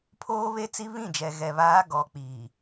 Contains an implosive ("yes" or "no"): no